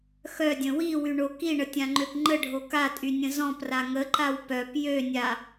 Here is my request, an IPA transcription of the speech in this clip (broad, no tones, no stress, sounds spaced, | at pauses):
x œ dʲ ə̃ w i w y ɳ o k i ɳ ə tʲ ã ŋ͡ǃ ø p ŋ͡ǃ ə ɖʱ o k a tʼ y nʲ ə̃ z ɔ̃ p r a ŋ ə ǃ a w p œ p j ø nʲ a